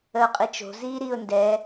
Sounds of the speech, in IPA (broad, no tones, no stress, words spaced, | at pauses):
əʊ̯qʼit͡ʃo̤ ziːɾiːʊ̯ndɛ